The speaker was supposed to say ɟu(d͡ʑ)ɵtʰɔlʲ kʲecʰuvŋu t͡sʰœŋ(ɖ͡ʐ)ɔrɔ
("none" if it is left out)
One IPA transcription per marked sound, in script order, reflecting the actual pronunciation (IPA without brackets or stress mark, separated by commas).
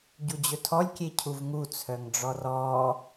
d͡ʑ, ɖ͡ʐ